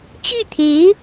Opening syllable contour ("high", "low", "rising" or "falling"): falling